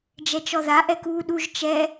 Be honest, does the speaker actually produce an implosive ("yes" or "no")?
yes